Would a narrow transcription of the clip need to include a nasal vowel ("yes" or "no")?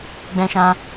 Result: yes